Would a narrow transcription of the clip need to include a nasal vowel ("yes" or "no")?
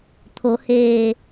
no